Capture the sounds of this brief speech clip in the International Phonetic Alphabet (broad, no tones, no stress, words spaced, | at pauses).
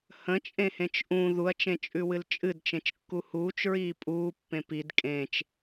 hə̃t͡ʃʼẽhẽt͡ʃ ʔũ ðuɐ̯t͡ʃẽt͡ʃʼʉwɨl t͡ʃʼɨdt͡ʃẽt͡ʃkːu huːt͡ʃɹiː pʼuːpːẽ pid kʼẽt͡ʃ